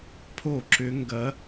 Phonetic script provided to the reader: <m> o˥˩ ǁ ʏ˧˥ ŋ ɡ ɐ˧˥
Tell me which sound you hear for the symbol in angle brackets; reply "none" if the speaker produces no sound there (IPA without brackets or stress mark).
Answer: pʰ